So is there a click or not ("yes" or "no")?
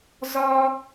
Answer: no